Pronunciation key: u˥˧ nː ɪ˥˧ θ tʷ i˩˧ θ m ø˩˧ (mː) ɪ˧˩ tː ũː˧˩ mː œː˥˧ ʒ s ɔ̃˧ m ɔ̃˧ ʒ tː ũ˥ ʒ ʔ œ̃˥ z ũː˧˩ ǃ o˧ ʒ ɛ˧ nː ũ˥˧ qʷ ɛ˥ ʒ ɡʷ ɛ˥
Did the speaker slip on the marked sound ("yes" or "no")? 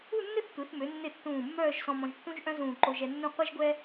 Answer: yes